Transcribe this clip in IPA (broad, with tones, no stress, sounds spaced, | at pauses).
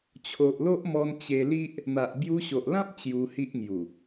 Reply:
t͡ɕʰ o˨ ʔ l o˦ ʔ m ɔ˧ n t͡ɕ e˧ l i˦ ʔ | n̪ a˨ ʔ b j u˧ ɕ o˨ ʔ l ã˦ p̚ t͡ɕ j u˧ h i˦ ʔ ŋ j u˨˩